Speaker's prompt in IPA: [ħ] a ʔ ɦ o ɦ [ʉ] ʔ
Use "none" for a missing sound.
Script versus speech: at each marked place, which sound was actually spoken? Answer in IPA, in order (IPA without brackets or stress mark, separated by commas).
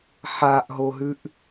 ħ, ʉ